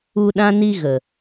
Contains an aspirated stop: no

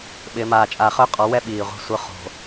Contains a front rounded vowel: yes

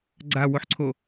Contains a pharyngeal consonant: yes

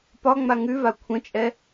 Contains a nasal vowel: yes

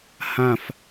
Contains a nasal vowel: yes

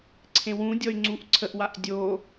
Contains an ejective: no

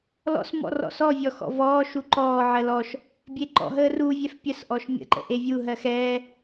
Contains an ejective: no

